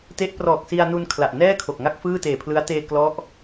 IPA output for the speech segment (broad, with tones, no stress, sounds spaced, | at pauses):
t e˦˥ ʔ p r ɔː˨˩ k̚ s i˧ a̯ n u˧ n kʰ l a˨˩ ʔ n ɛː˥˩ kʰ o˨˩ k̚ ŋ a˥˩ k̚ f ɯː˥˩ t eː˨˩ pʰ l ɯ˦˥ a̯ t eː˧ k l ɔ˦˥ ʔ